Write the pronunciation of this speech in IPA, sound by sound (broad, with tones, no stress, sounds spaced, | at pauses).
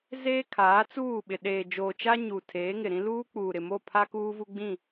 z eː˦ kʰ aː˨˦ t͡s uː˦˨ ɓ ɪ˨ ɗ eː˨ d͡ʒ oː˨ t͡ʃ a˦ ɲ uː˨ tʰ eː˨˦ ŋ ɪ˨ ɾ ĩ˦ l uː˦ k͡p uː˨ ɾ ɪ˨ m o˦˨ pʰ a˦ k uː˦ v u˦ ɡ͡b ĩ˦˨